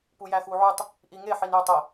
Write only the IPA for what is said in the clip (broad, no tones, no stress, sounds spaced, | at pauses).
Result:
p u j æ x u ʕ u tˤ | ʔ i ŋ e ħ i n j ʏ tˤ e